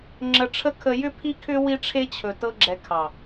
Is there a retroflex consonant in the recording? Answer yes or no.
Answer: yes